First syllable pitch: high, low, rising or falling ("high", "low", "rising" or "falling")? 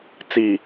low